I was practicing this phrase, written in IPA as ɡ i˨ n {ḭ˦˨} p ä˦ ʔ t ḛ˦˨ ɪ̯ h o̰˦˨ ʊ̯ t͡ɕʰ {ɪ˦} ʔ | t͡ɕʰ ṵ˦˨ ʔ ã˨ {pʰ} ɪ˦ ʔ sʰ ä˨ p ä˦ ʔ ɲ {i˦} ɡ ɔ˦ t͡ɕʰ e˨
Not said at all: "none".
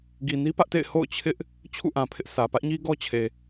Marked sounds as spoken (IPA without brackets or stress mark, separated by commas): i˦, ɪ˦, pʰ, i˦